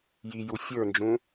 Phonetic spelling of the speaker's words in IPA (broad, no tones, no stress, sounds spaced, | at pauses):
j i j u fʲ ə˞ n d͡ʒ ũ